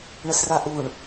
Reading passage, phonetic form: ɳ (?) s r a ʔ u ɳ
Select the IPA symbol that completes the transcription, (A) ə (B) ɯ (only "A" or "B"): A